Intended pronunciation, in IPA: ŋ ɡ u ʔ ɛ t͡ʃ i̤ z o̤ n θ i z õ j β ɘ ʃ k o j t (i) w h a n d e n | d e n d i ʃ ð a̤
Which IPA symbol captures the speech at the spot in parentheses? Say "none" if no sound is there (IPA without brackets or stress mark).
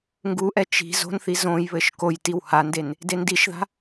i